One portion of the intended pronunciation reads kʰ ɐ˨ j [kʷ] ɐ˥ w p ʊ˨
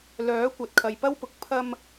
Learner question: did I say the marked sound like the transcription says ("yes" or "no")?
no